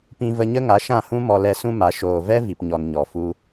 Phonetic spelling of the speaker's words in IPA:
p ĩ˧ v ə˧ ɲ ə˦ ŋ a˨˦ ʃ ã˦˨ h ũ˦ m ɔ˧ l ɛ˧ s ũ˦ m a˨˦ ʃ oː˨ v ɛ˦ v i˨ p ɲ ɔ˨ n ɲ ɔ˨ f u˧

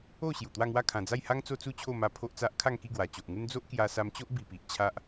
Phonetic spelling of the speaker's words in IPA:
o˥˧ ɕ j u˨˩ t̪ w a˥˧ ŋ w a˥˧ kʰ ã˨˩ d͡z a˥˧ j h a˦ ŋ t͡s o˦ t͡s u˥˧ t͡ɕʰ o˥˧ m a˧ pʰ o˦ ʔ t͡s a˦ ʔ kʰ a˥˧ ŋ k i˥˧ ɡ w a˨˩ t͡ɕ o˨ ʔ ŋ u˦ n d͡z o˦ ʔ k j a˧ s a˧ m t͡ɕ o˦ ʔ b i˧ p i˨ ʔ t͡ɕʰ a˦ ʔ

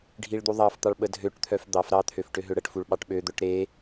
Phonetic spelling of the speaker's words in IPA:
ɖʱ i ɭ d̪ u ðˤ ɑ f t̪ ɑ ɭ ɓ ə dʱ ø ʈ t̪ʰ œ f d̪ ɑ f ɾ ɑ t̪ʰ ø f ʈ ø ɦ ø ɽ ə ʈ f u ɭ ɓ ɑ ʈ ɓ ø d̪ œ ʈ ɾ e

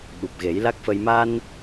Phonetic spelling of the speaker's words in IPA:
ɓ u˨˩ p̚ ɣ e˨˩˦ j l a˦˥ k̚ f ə˧ j m a˧ n

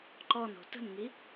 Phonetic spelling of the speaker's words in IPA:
ǃ ɔ n o̤ t ə̤ n ŋ i

